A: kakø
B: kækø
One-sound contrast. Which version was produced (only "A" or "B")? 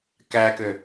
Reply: B